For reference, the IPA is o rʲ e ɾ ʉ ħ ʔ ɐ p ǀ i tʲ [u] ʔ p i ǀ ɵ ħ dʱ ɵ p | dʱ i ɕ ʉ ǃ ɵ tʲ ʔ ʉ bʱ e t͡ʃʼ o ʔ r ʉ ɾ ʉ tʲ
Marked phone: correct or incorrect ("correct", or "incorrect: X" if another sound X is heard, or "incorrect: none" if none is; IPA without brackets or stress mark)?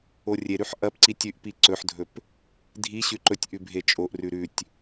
incorrect: ʉ